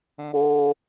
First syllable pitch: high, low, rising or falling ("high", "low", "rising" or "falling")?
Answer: high